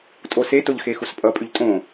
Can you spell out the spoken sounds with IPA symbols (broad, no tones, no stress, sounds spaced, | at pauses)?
tʼ o s e t o ʎ x e x u s pʼ ʌ pʼ y ʎ tʼ õ